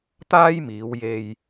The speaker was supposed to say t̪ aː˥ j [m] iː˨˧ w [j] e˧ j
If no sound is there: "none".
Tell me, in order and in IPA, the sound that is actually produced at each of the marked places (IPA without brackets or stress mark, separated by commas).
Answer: m, j